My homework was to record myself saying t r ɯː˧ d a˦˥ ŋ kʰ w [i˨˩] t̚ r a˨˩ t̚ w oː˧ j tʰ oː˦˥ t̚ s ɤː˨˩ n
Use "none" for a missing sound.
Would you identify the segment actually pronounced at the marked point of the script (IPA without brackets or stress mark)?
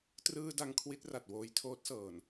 i˦˥